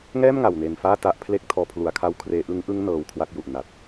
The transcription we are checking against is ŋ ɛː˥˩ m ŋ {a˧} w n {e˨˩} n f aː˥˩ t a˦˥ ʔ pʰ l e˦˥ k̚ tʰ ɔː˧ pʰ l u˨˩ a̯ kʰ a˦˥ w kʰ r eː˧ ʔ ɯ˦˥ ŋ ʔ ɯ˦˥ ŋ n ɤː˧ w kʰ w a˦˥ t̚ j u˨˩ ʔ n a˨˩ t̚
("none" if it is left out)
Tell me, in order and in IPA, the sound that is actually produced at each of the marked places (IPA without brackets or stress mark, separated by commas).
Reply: a˨˩, e˨˩